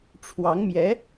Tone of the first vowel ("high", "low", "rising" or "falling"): rising